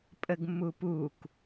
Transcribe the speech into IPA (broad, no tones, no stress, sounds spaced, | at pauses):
pʼ ə ɡ mː u p u k